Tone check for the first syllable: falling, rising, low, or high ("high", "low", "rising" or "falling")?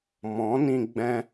rising